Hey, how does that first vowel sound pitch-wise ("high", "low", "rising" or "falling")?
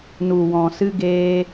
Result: low